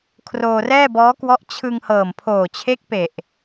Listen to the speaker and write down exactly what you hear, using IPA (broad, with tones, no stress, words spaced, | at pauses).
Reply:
kʰroː˧rɛː˥˩bɔː˦˥kwɔ˦˥ʔ t͡ɕʰɯ˧ŋ hɤː˨˩mpʰoː˨˩t͡ɕʰe˦˥k̚ pe˨˩ʔ